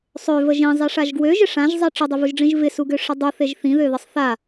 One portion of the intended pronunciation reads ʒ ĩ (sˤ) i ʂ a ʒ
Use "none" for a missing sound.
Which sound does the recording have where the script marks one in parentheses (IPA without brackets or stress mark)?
zˤ